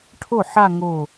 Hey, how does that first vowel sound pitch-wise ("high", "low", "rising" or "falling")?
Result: falling